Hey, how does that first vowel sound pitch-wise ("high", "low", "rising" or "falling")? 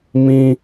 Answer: high